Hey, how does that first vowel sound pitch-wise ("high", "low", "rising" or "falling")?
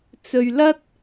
low